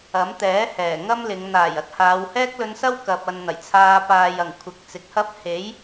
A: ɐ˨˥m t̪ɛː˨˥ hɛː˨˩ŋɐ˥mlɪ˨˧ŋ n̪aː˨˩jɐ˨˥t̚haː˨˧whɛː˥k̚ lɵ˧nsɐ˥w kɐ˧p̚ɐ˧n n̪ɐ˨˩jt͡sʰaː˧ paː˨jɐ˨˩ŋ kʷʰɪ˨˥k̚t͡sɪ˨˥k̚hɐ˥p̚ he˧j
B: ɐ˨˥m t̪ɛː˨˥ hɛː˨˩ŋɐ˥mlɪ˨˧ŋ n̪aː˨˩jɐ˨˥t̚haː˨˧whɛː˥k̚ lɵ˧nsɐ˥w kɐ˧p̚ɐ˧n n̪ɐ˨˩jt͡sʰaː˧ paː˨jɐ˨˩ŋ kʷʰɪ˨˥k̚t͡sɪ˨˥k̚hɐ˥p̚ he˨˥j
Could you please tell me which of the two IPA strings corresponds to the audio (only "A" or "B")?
B